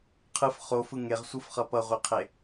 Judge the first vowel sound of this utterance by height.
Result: high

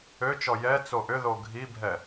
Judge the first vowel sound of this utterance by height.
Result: mid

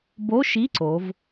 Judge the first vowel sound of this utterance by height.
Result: mid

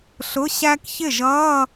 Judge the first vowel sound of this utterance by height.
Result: high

